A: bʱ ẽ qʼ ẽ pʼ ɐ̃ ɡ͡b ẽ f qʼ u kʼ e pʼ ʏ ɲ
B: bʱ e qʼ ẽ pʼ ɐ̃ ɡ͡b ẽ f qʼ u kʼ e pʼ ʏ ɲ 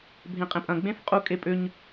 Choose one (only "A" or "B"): A